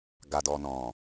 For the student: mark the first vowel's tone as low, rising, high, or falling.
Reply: low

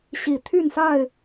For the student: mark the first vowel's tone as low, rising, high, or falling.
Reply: low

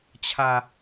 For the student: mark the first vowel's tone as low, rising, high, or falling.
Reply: low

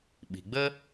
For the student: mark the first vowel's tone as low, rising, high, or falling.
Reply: low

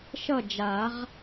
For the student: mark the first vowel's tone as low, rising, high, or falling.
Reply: falling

